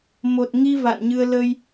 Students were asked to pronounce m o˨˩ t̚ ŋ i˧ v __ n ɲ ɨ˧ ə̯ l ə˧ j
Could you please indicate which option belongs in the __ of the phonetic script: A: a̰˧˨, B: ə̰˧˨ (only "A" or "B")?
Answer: A